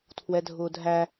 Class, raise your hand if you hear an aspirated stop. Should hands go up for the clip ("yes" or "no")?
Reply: yes